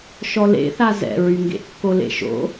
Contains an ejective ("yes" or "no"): no